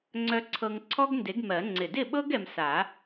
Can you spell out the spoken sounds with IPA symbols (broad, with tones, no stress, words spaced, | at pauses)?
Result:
ŋ͡ǀœ˧ǀʰɤ˧ŋ ǀʰɔ˥ɡnde˨˥ɡmɜ˨˩˦ ŋ͡ǀɪ˨˩dɪ˥˨ɓɤ˥ɡ ɛ˧msa˨˩˦